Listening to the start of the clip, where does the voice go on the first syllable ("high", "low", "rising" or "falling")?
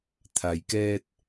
low